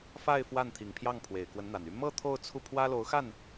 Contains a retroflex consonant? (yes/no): no